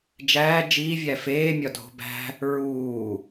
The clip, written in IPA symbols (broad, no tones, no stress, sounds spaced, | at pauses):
d͡ʒ æː d͡ʒ iː vʲ æ f eː mʲ ɒ dʱ o̤ b æ̤ | ɹ uː